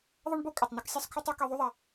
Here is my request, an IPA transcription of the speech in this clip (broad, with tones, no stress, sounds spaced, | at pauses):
ðˤ ɐ˥ ɳ b o˥ kʼ ɐ˧ tˤ n ɨ˥ k sʲ e˥ sˤ kʰ ɵ˥ tˤ ʉ˥ k i˥ ðˤ ʉ˥ ðˤ a˧